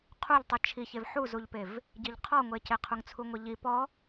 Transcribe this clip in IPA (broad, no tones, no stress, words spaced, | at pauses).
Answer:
qʰuʎtˤi t͡ʃʰiçev ħuzuʎpev | ɟiʎqʰɔŋʷece qʰuŋt͡sʰuŋʷiʎi pɔ